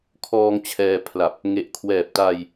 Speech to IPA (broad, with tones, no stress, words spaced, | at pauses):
kʰɔː˧ŋt͡ɕʰɛː˧ pʰla˨˩p̚ | ŋe˨˩ʔkʰwɛː˨˩p̚ta˧j